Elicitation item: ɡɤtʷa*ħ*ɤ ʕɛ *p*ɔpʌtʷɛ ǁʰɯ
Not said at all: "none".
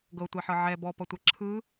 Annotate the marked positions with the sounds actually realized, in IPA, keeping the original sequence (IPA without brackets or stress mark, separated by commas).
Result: ħ, b